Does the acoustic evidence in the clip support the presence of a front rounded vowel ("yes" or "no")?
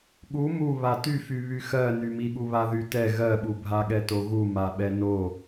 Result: yes